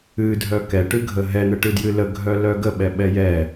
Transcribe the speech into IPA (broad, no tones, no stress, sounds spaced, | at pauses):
ɨ dʱ œ k ɛ ʈ ɨ ɡʱ ə ɦ ɛ n̪ ə ʈ ɨ d j ɨ l ə ɡʱ œ l œ ɡ ə ɓ ɛ ɓ ɛ j ɛ